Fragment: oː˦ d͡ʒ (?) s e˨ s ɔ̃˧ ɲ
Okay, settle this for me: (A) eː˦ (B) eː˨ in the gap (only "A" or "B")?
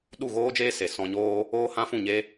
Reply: A